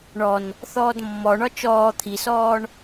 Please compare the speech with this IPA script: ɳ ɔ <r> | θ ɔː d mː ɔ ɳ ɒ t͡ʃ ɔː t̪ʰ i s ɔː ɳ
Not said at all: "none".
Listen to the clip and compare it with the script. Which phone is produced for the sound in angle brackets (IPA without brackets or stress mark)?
n